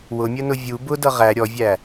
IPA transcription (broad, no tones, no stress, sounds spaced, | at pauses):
w ʊ mʲ ə n ʊ vʲ u b ʊ d ʌ ʁ æ ɾʲ ɔ vʲ æ